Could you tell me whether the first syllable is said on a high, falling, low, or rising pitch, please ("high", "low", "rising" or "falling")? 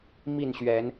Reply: falling